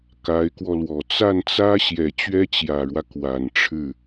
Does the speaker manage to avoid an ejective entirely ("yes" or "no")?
yes